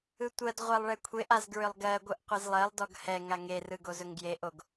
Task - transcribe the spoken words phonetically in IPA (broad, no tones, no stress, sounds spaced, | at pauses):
ɯ tʷ ɜ d ʁʷ a lˠ ɭ ɛ kʷʰ e ʔ a z ɡ ɹ ʏ lˠ ɡ ɜ ɡʷ ɯ ʔ qʷ e z lˠ ɜ lˠ d ɔ ɡ h ɛ ŋ a ŋ e r ɯ ɡ o z ɵ ŋ ɡ j e ʔ o ɡ